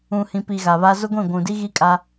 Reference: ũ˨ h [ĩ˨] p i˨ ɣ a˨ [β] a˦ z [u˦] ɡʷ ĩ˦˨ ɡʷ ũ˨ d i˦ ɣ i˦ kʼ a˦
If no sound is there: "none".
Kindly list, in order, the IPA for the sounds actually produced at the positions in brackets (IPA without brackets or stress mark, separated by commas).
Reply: ĩ˨, β, ʊ˦